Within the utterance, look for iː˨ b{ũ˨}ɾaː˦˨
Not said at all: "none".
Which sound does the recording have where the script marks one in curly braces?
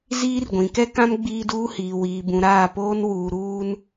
ũ˨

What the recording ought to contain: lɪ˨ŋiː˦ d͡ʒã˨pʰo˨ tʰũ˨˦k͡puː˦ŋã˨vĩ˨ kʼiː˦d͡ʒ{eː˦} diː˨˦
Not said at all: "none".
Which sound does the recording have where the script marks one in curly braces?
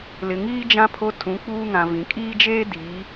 eː˦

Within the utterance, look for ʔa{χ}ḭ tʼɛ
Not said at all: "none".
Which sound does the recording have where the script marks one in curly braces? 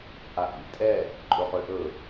ʔ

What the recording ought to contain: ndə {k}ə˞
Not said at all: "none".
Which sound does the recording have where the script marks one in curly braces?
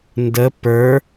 p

